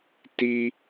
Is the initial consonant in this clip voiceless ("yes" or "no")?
yes